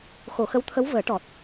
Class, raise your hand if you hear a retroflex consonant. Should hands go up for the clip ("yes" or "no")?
yes